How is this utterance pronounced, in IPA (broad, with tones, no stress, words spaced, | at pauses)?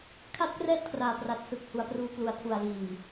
kʰa˦˥t̚krɛː˦˥t̚kʰraː˨˩pra˨˩t̚ sɯ˨˩k̚hu˩˦a̯pruː˧ klu˨˩a̯tʰu˨˩a̯liː˨˩m